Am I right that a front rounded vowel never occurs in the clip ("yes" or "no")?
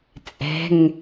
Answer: yes